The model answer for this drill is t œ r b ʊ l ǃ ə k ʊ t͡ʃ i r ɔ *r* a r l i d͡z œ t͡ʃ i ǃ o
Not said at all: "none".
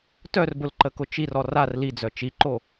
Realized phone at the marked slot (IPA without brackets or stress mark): r